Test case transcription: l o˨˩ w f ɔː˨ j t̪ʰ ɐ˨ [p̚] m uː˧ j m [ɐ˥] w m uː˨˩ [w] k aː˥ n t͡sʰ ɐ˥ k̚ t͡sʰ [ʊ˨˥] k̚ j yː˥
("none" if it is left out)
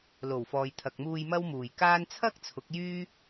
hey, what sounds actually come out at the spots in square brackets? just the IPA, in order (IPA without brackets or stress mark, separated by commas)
k̚, ɐ˥, j, ʊ˨˥